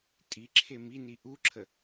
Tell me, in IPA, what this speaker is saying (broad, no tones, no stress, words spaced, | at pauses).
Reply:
tʼiǁʰe mini ʔuǁʰə